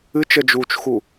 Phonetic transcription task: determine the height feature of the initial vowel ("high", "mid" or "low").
high